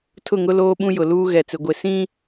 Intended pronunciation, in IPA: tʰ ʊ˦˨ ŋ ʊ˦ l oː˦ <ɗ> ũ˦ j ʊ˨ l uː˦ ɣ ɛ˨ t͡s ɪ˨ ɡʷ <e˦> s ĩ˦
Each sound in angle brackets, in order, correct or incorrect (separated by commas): incorrect, incorrect